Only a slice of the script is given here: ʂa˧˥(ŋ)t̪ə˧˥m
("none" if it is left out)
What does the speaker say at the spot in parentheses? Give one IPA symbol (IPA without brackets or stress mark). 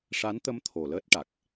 n